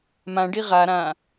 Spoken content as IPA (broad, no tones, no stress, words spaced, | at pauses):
mãɖi ʁaɾãː